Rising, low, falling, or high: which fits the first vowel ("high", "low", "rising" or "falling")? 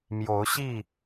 rising